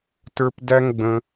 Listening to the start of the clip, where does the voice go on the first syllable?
high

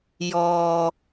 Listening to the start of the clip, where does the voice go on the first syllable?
low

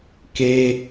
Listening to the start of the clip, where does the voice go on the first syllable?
high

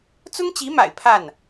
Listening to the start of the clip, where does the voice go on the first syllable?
high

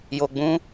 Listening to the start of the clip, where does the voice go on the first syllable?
low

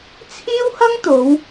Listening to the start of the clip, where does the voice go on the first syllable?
high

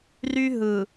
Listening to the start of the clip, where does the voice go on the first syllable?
high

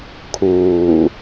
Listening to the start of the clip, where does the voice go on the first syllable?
low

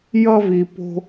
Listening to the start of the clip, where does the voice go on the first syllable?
high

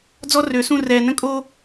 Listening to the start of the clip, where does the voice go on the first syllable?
high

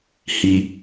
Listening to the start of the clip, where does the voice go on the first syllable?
low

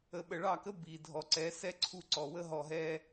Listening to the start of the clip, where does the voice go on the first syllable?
low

